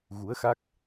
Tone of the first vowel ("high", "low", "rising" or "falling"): rising